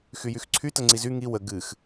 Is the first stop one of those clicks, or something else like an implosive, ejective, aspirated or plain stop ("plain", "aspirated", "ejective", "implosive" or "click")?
click